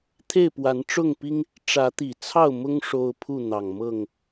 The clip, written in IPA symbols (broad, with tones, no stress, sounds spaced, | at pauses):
t̪ʰ e˥˨ ɪ̯ p w a˨˦ n ʈ͡ʂ ʊ˥˨ ŋ p i˦ ŋ | ʈ͡ʂ ä˨˦ t̪ i˨˩ t͡sʰ ɑ˥˨ ʊ̯ m ʊ˦ ŋ ʂ o˦ ʊ̯ pʰ u˥˨ n̪ ɑ˨˩ ŋ m ɤ˥˨ ŋ